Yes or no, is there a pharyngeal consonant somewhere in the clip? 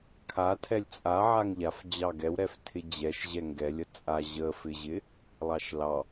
yes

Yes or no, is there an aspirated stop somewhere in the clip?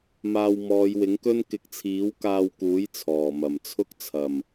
yes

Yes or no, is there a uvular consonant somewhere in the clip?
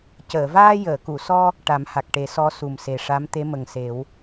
no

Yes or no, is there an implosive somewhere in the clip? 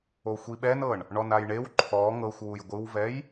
yes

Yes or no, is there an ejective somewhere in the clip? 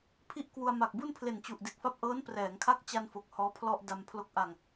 no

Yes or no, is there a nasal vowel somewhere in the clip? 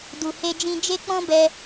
yes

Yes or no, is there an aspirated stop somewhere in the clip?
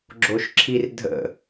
yes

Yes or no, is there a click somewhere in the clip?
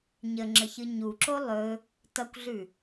yes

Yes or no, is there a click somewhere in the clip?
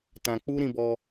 no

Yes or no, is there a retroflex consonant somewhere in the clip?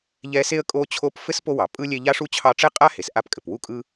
yes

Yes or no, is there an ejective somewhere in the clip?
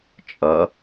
yes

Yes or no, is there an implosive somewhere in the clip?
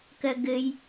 no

